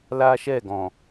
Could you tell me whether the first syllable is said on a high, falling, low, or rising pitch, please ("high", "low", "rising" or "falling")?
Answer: high